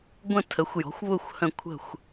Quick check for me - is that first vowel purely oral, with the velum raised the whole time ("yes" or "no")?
no